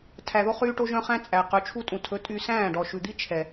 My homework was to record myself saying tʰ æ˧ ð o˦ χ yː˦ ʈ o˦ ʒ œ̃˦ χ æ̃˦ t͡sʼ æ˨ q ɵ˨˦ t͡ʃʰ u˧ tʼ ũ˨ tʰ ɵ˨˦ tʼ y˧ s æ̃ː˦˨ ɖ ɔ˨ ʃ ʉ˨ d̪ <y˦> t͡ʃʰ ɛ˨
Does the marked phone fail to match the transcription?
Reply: yes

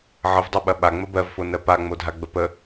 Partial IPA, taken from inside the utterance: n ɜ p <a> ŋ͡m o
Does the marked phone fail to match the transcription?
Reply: no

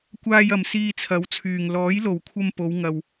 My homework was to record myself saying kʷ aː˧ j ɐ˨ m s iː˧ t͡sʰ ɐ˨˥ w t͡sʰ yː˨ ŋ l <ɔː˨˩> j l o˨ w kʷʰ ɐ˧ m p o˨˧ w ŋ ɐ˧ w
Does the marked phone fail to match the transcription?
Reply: yes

